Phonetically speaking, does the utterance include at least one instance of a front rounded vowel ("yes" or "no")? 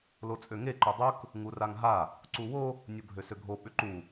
yes